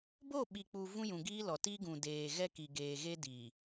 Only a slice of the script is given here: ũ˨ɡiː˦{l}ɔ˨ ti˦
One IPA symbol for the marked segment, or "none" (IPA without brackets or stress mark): l